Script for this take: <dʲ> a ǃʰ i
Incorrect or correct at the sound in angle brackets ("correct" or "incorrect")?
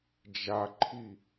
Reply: incorrect